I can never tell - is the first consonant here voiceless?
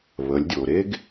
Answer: no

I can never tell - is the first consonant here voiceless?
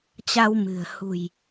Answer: yes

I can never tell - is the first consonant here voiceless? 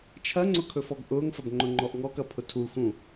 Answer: yes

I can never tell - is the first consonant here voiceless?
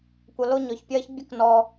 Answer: yes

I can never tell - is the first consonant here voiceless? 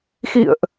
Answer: yes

